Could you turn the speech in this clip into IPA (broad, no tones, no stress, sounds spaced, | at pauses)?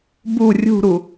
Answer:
b u rʲ ṳ ɾ u